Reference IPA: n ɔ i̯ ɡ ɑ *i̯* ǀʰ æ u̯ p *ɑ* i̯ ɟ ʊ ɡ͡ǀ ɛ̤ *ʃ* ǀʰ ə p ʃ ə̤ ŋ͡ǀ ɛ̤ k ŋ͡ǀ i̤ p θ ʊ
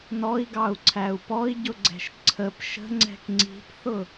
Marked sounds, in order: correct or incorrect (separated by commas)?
incorrect, incorrect, correct